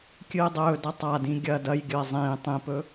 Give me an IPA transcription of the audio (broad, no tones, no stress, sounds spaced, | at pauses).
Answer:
kʲ ɨː dˤ ɵː d ɐ tˤ a d ĩ ɡʲ ɐ d ɐ j ɡʲ ɵ e̯ zˤ ĩː tˤ ĩ p ɵ